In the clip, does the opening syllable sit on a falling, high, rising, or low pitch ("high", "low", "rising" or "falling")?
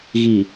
low